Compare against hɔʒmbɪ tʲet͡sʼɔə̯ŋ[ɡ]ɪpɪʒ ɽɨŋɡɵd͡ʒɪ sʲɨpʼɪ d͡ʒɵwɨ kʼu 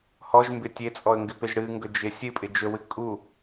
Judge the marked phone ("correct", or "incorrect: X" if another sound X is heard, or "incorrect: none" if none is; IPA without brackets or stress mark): correct